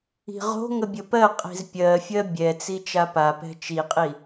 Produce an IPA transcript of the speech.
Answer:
i̤ʁo̤ŋə bʲəpɜqʼi̤z pʲɜfʲɜ bʲɛt͡si t͡ʃapapɛ̤ t͡ʃiqʼi

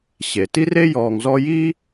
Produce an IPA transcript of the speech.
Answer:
ɕe˩ ti˥re˥jɔː˨ŋzɔ˦ ji˥

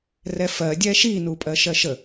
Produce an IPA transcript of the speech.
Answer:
rɛfɜ dʲɛʃi nupʼɜʃɜʃə

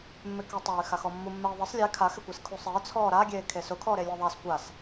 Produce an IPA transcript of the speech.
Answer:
mːɪkɛtˤay̯ xaxɔmːu mːɛi̯ðˤɪsˤ lʲe kʰa xɪkʷeskʰusˤɪː t͡sʰɔːɾa ɡʲeːkʰesʊ kʰɔːɾelʲɛðˤas kʷas

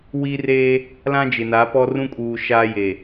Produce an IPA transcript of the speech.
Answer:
wi˦re˦ | lã˦d͡ʒɪ˨na˨˦pɔ˦ rũ˦kʼuː˨ ʃaː˦je˨

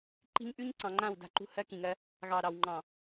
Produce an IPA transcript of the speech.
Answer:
ǃi̤˦ɲʔʉ˦ɲ ǀɑ̃˨ŋ͡ǃã˦˨wda̤˦˨ǃṳ˦ hɜ˦kĩ˨ŋɜ˦ | ɣɑ˨ ɾɑ˨wŋ͡ǃɑ̃˨

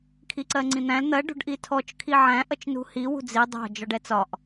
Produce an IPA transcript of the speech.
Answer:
kʰiǀɜŋ͡ǀĩn̪æ̃l n̪ɜ ɖṳɖʔitʰɔt͡ʃ kʰiʕæ̃ ʔʌt͡ʃnṳhi wṳd͡zi dˤɑ̤ d͡ʒɒɖɛt͡sɒʔ

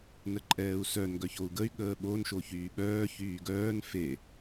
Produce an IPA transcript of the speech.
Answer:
nəǃʼɛːu̯sœn ɡœçou̯ɡəy̯ ɠəːɓon ʃoçyːɓœː çyːɡœːn fe

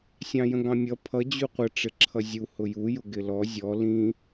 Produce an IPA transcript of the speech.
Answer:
sʲɑ̃jə̃ɡɑ̃mʲʌ pʰʌ d͡ʑuqʷə ʈ͡ʂɪǁʰʌzʲu hʊju jʊɡɪlɔ zʲɔ lĩ

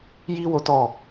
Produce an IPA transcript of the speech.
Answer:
ji˦ wo˦tɔ˦˨

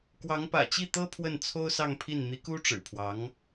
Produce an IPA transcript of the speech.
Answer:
kwɑ˧˥ŋpä̰˨˩ t͡ɕi˥˩t̪ɤ˥ pʰwə˥˩nt͡sʰo˥ʊ̯sɑ˥˧ŋpʰi˥˩n n̪i˧˥ku˥ʈ͡ʂɻ̩˨˩pʰwɑ˧˥ŋ

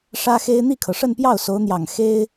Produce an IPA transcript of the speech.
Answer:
ʂä˥xe˥ɪ̯ n̪i˥˩kʰɤ˩ʂə˥˧npjɑ˥˩ʊ̯ so˧˥ʊ̯n̪jɑ˨˩ŋ xe˥ɪ̯

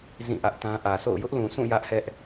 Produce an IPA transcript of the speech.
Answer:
zĩ˦˨ʔä˦ʔtã˦ ʔä˨so̰˦˨ʊ̯ jʊ˦ʔlũ˨sũ˦˨ jä˦ʔhɛ˦ʔ

